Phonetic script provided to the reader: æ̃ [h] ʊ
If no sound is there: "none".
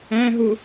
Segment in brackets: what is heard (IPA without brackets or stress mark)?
ɦ